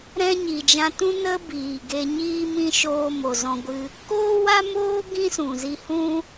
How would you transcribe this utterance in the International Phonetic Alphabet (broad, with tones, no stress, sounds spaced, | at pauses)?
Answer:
ɾ ɛ̃˧ ɲ i˨ d͡ʒ ã˧ t ũ˦ n ə˦ b iː˨ ɡ e˧ ɲ iː˦ m ĩ˦ ʃ oː˧ m o˨ z ɔ̃˧ ɡʷ ɨ˧ | k oː˦ w a˦ m oː˦ ɡ ĩ˦ s ũ˨ z i˧ h ũ˦